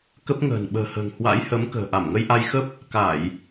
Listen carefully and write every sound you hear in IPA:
k ə˦˥ p̚ ŋ ə̤ː˨˩ n ɓ ə̤ː˨˩ h ə̤ː˨˩ ŋ h w a̰˧˥ j h ə˨˦ m k ə̤ː˨˩ ʔ a˧˩ m ŋ ə˧ j ʔ a˧ j x ə˦˥ p̚ | k a˧˩˨ j

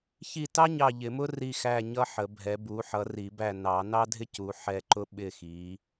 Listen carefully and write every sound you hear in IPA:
ç i˦˨ t ɑ˥ ɲ ɑ˦˨ ʎ ɪ˨˩˦ m ʊ˥ r i˦˨ x æ˦˨ ɲ ʌ˥ ħ ə˨˩˦ bʱ ɛ˨˦ b u˨˦ ħ ʌ˨˦ r i˨˩˦ b æ˦˨ n ɑ˨˩˦ n ɑ˥ dʱ ɪ˥ c u˨˦ ħ ɛ˦˨ ǃ ʊ˥ ɓ ɪ˦˨ x i˨˦

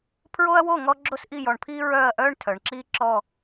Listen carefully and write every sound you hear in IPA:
pʰ ɹ o˥ ɐ̯ w o˥˧ ŋ ɔ˥ ɡ͡ǁ o˥ s ʔ i˥˧ j ɔ˧ ɳ pʰ iː˥ ɹ œː˥˧ ɐ̯ ʔ œː˥ ɳ tʰ œ˩˧ ɳ ǁ iː˥ ǁ ɔ˥˧

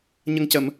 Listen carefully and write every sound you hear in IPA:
ɲ ə˨˩ ŋ c ə˨˩˨ m

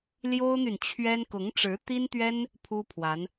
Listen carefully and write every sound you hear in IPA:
l j o˥ ʊ̯ n̪ y˨ n t͡ɕʰ ɥ ɛ˥ n k ʊ˧˥ ŋ ʈ͡ʂ ɻ̩˧˥ t̪ i˥ n t̪ ɥ ɛ˥ n | pʰ u˥ pʰ w a˧˥ n

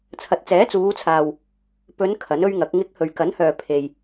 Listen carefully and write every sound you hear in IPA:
t͡sʰ ɐ˨ t̚ t͡s ɛː˨˥ t͡s uː˨˧ t͡sʰ aː˨ w | p ɵ˨˧ n kʰ ɐ˨˥ n ɵ˥ ɥ ŋ ɐ˨˥ k̚ ŋ ɪ˨˥ k̚ h ɵ˨ ɥ k ɐ˨˥ n h œː˨ pʰ e˨ j

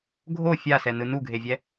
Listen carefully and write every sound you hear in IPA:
ɡʱ o fʲ a s ɛ n ɯ n u ɡʱ e vʲ ɛ

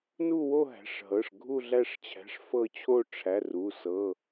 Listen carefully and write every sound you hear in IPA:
n u˦˨ w o˦˨ ɦ æ̤˩˧˩ ʂ ɦ ɤ˩˧˩ ʂ ɡʱ u˦˨ ɮ æ˦˨ ʂ t͡ɕʰ æ̤˩˧˩ ʂ f ɤ˦˨ t͡ɕʰ o˦˨ ʈ͡ʂʰ æ˩˧˩ r u˩˧˩ s ɤ˩˧˩

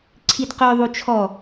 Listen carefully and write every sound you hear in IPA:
ǀʰ i d q œ ðˤ u t͡ʃʰ ɔ

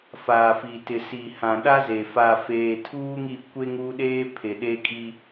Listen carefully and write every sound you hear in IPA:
f aː˨ f i˨ t ɪ˨ s i˨ h ã˨ ɗ a˦ z e˨ f a˨ f eː˨ tʰ uː˦ ŋ i˦˨ kʷ e˦ ŋ u˦ ɗ eː˦ pʰ e˨ ɗ e˦ kʼ i˦

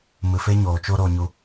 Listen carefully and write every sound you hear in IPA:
m ɨ˨ f e˦ ɲ oː˨ t͡ʃ o˧ ɾ o˨ ɲ u˨

